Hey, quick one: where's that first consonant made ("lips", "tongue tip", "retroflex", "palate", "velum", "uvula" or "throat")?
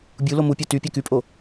lips